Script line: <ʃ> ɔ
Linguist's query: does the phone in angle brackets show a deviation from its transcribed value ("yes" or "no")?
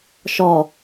no